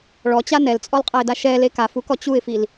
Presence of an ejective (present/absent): present